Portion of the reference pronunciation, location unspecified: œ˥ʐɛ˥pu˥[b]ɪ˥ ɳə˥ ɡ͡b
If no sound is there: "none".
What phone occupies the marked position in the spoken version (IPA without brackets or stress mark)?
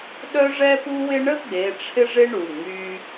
w